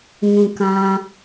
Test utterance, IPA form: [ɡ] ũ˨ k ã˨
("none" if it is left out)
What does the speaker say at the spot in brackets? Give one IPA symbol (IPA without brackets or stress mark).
ŋ